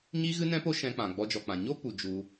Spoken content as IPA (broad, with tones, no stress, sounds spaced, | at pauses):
ɲ i˦ ɣ ɨ˦ n ɛ̃˦ p o˦ ʃ ɛ̃˧ k͡p ã˨ ɡ͡b ɔ˧ d͡ʒ ɔ˨ k͡p ã˨ ɲ o˦ p u˨ d͡ʒ u˧